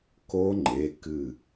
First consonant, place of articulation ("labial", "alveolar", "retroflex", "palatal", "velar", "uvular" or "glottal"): velar